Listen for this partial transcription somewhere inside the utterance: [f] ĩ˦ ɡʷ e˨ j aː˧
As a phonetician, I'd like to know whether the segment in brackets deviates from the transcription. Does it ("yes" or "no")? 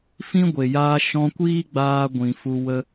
no